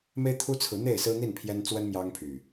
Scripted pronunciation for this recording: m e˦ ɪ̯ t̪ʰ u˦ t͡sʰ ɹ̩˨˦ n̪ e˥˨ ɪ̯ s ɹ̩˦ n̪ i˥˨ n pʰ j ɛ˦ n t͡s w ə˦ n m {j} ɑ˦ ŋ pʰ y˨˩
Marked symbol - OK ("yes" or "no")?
yes